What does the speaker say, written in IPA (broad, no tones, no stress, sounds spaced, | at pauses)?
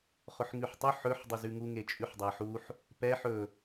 χ ʊ ħ ŋ ʉ ħ tˤ ʊ ħ ɵ ħ dˤ ɵ z ʉ ŋ u ŋ e t͡ʃʼ ʉ ħ dˤ æ ħ u ħ | p ɛ ħ ɵ